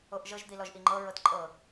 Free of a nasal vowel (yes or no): yes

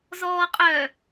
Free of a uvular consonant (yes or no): no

